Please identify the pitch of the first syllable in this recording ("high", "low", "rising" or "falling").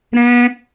high